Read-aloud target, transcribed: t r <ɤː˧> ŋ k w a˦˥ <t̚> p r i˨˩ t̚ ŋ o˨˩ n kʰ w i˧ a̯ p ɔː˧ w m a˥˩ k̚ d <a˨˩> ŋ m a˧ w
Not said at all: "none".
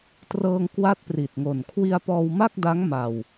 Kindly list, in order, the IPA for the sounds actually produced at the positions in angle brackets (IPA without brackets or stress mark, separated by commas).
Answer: ɤː˧, t̚, a˦˥